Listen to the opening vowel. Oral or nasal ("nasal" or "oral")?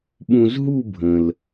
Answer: nasal